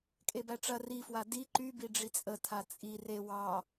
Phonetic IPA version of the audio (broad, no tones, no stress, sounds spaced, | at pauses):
kʼ e b æ ʈ͡ʂ ɐ r i f w a d i ǃ y b i ɖ͡ʐ i t͡sʼ ə tʰ a t͡sʼ i r e w ɑ